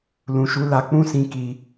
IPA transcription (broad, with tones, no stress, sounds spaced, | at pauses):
l ũ˨ ʃ u˨˦ l a˧ k͡p ũ˦ s ĩ˧ k i˧